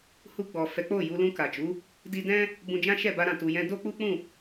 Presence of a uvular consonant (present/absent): absent